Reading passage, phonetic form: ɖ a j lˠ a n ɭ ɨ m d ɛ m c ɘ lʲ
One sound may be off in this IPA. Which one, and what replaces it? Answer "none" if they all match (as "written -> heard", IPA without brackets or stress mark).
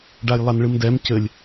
none